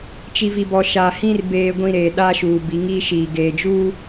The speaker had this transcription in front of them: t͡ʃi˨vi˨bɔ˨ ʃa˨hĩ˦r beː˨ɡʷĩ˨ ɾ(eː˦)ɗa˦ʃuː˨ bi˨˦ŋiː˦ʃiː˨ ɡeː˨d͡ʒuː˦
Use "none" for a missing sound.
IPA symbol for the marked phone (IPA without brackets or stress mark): eː˨